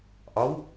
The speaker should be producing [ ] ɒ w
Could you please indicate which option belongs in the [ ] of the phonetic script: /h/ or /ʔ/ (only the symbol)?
ʔ